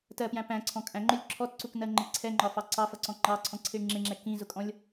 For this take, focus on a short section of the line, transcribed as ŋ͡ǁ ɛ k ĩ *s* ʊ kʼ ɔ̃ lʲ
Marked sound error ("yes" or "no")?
yes